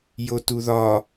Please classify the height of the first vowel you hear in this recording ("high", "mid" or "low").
mid